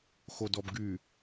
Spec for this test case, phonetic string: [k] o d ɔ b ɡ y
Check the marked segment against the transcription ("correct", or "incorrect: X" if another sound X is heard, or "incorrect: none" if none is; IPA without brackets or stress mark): incorrect: x